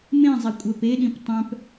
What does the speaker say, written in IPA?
m ẽ zˤ e kʷʼ œ p e ɗ ĩ p tˤ œ̃ p

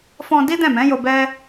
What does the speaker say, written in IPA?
f ɔ̃˧ d i˦ d ɛ̃˦˨ m ɛ̃˨˦ j o˧ b ɛ˦

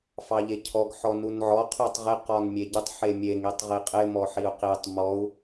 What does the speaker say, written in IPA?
f ɑ ʎ e cʰ ɔ ɡ ħ ɔ n u n ʕ ɔ qʰ u tˤ ʁ ɪ q ɔ n mʲ e ɟ ɪ tˤ ħ e mʲ e ŋ i tˤ ʁ i qʼ ɪ m ɔ ħ i u̯ q i tˤ m ɔ u̯

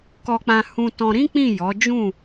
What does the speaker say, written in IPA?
k ɔ˧ k͡p ã˧ h ũ˧ t ɔ̃˧ ɾ ĩ˦ k͡p ĩ˦˨ j ɔ˨˦ d͡ʒ ũ˦˨

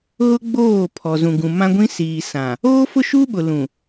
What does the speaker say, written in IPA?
ɣ ʊ˦ ɡ͡b oː˦˨ pʰ ɔ˨ z ũ˨ ɡ ũ˨ m ã˦ ɡʷ ĩ˦ s iː˨ s ã˨ | oː˦ f ʊ˦ ʃ u˦ ɓ ʊ˨ l ũ˨

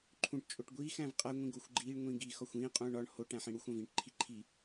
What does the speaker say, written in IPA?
ǃʰ ũ ʈ t͡ʃʼ o ʈ ɡʷ iː x æ̃ v qʼ æ ŋʷ ĩ ɡ o xʷ ɡ͡ǃ iː ɳ ŋʷ ĩː ɡ i x ɒ xʷ ĩː qʼ ũː ɳ ɒ ɳ h o ʈ æ̃ ħ ĩ ɽ u xʷ æ̃ v ĩː ʈ ǃʰ i ǃʰ i

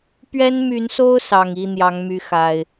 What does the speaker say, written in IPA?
p ɥ ɛ˦ n m y˨˦ n s o˦ ʊ̯ s ɑ˨˩ ŋ i˥˨ n̪ j ɑ˨˦ ŋ m y˨˦ x a˨˩ ɪ̯

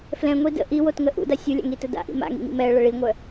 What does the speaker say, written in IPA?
f l ɛ̃ ŋʷ i d ə̰ ʔ i w o t ŋ ə ʔ ṵ d a sʲ u lʲ a̰ ŋ i t ə d a̰ ʔ ḭ m a̰ ŋ ḭ ŋ ḭ m ɛ ə̯ ɭ ə ɭ i ŋʷ œ

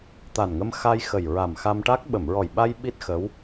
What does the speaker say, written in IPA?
t̪ a˨˩ n ŋ ə˧ m x a˧ j x ə˨˩ j ɹ a˨˩ m x a˧ m ʈ a˦˥ k̚ ɓ ə˨˩˨ m ɹ ɔ˨˩ j ɓ a˧ j ɓ i˦˥ t̚ x ə˧˥ w

